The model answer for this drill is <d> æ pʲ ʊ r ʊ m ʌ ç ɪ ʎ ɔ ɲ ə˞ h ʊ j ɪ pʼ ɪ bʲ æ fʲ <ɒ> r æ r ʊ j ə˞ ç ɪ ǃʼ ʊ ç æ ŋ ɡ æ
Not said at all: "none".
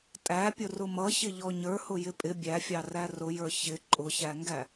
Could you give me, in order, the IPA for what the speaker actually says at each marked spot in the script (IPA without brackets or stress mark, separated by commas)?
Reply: tʼ, ɑ